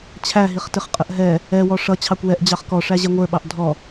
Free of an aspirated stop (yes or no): no